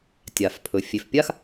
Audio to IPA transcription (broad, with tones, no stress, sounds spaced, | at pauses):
tʲ a˨ f pʰ ɵ˨ fʲ e˨ f pʲ a˦ x